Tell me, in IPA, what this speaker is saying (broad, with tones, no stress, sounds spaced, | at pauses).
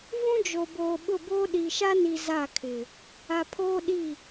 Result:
v ũ˦ d͡ʒ o˨ b oː˨ ɓ ʊ˦˨ b oː˦ ɗ i˨ ʃ a˦ n i˨ z a˦˨ kʰ ɪ˨ | a˨ pʰ oː˦ ɗ i˦˨